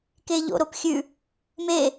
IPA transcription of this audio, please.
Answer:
k e ʎ o̰ ɾ o p xʲ ʉ | m e

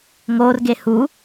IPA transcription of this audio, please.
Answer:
ŋ o r ɡ e h u

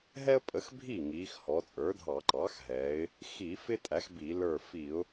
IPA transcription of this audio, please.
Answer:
ɦ ɛ˥ ə̯ pʼ ə˩˥ x bʱ iː˥˩ ŋ iː˩˧ x h ɔ˩˧ t͡sʼ ə˞˩˥ dʱ ɑ˧˩˧ ǃ ɑː˩˥ x ɦ ɛː˩˧ ɪ̯ | x i˧˩˧ f ɪ˥ tʼ æ˩˥ x b i˧˩˧ l ə˞˧˩ f i˧˩˧ ʊ̯

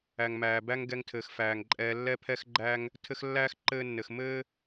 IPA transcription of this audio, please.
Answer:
æ˩ ŋ m æː˩ b æ˦ ŋ ɡ ɛ˨ ŋ tʰ ɘː˩ x f æː˩ ŋ ǃʼ ɛː˨ lː ɛ˦ pʰ ɛ˦ x ɡ͡ǃ æ˦ ŋ | tʰ ɘ˦ x lː æː˥ x ǃ ɘː˦ nː ɘ˨ x m ɘː˦

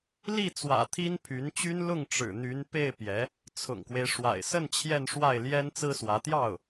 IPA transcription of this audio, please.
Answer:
l i˥˩ t͡s w ä̰˨˩ t̪ʰ i˥ n pʰ y˧˥ n t͡ɕ y˥ n l ʊ˥˩ ŋ ʈ͡ʂ ɻ̩˨˩ n̪ y˧˥ n p e˥˩ ɪ̯ p j ɛ˧˥ | t͡sʰ ʊ̰˨˩ ŋ k w e˦ ɪ̯ ʂ w a̰˨˩ ɪ̯ s ə˥˧ n t͡ɕʰ j ɛ˥˧ n ʂ w a˥˩ ɪ̯ l j ɛ˥ n t͡s ɹ̩˥ s w ä˧˥ t̪ j ɑ˥˩ ʊ̯

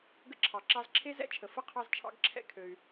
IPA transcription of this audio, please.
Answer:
ɡ ə̰˦ ǁʰ ɑ˨ ǁ ɑ˦ z ǁʰ e˥ z ɛ̰˥ t͡ʃʰ ə˨ f ə˥ qʰ ɑ˦ z t͡ʃʰ ɑ̰˦ ɡ ǁʰ ɛ̰˦ kʰ ø˨ y̯

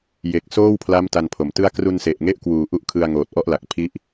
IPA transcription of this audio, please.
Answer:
j e˨˩ k̚ s oː˥˩ w pʰ l a˦˥ m t a˧ n pʰ o˩˦ m t ɯ˥˩ a̯ k r u˧ n s e˨˩ ʔ ŋ e˦˥ ʔ k w uː˨˩ ʔ u˦˥ ʔ kʰ ɯ˧ a̯ ŋ oː˨˩ t̚ ʔ ɔ˥˩ ʔ l a˨˩ k̚ pʰ i˦˥ ʔ

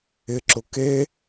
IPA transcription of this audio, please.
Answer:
ɪ ǁ ʊ k e

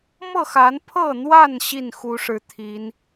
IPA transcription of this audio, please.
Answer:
m ɤ˥˨ x a˨˦ n pʰ ɤ˥˨ n̪ w a˥˨ n ɕ i˥˨ n x u˨˦ ʂ ɻ̩˨˩ t̪ʰ i˨˦ n

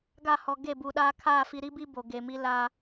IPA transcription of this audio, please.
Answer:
ɡ a˦˨ h ɔ˨ ɡ e˦˨ b u˨ ɗ aː˦ kʰ aː˦˨ f i˨ ɾ i˦ b i˦ b o˨ ɡ e˨ m i˦ l a˨

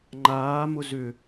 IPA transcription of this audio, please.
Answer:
ŋ͡ǃ aː m ʊ z ʏ

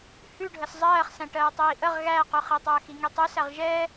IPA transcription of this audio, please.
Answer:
h ʉ ɖʱ ə s zˤ ɜː χ s æ̃ ʈ ɜː tˤ iː ʔ ə ʁ ɣ æ q ʉ χ i tˤ ɜː x i ŋ i tˤ ʉ s æ ʁ ʒ ɛː

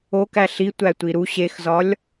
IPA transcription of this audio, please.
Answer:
o k æ ɬ i tʷ æ tʷ i ɾ u ɕ e x z ɒ lʲ

